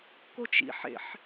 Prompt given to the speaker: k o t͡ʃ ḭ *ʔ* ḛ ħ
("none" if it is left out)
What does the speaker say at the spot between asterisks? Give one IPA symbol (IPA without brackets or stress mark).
ħ